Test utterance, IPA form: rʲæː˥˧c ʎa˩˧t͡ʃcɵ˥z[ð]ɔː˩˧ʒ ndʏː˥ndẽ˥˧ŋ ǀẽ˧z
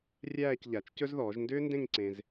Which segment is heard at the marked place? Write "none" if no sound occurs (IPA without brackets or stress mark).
ð